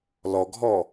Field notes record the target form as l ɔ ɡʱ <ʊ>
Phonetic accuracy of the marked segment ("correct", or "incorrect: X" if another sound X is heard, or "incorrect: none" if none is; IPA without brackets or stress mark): incorrect: ɔ